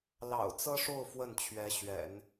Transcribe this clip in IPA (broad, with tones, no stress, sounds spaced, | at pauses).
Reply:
l ɑ̰˨˩ ʊ̯ t͡s ɤ˥ ʂ o˥˧ ʊ̯ f w ə˥˩ n t͡ɕʰ ɥ ɛ˧˥ ɕ ɥ ɛ̰˨˩˦ n